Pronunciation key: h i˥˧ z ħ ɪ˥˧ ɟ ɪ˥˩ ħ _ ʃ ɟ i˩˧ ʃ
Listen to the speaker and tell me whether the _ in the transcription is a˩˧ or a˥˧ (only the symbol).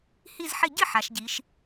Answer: a˩˧